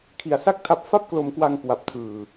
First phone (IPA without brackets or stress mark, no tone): kʰ